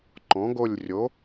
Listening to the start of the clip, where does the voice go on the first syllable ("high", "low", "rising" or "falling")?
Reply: rising